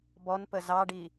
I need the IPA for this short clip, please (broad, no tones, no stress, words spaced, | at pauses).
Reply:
bɔnpə zɑɖi